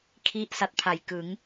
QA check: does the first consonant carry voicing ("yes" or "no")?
no